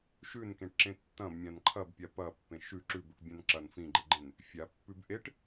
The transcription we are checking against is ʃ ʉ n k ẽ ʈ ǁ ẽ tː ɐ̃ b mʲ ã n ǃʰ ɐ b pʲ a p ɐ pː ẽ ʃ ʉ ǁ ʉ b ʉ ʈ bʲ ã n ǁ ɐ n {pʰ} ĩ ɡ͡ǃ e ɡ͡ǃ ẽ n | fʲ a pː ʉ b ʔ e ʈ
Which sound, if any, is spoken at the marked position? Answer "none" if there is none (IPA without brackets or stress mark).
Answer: f